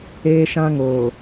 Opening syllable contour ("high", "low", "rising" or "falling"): high